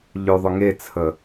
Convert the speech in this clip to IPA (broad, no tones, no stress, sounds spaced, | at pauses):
ʎ ø ðˤ ʊ ŋ e t͡sʰ ə